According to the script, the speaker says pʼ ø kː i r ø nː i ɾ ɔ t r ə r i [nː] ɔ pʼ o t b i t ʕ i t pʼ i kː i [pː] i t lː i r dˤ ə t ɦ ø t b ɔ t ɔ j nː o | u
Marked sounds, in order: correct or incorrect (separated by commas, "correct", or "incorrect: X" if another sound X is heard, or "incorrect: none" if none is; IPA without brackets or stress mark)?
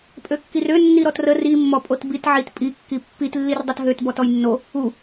incorrect: mː, correct